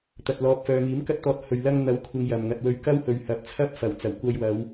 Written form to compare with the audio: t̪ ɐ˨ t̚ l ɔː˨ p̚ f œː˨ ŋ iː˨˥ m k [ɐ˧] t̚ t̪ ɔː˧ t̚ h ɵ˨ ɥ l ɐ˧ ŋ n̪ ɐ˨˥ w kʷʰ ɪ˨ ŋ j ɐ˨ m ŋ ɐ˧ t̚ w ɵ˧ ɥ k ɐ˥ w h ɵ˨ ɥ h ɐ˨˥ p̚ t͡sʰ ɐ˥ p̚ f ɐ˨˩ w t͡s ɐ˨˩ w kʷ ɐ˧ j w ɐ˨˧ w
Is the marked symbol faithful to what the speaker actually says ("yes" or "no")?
yes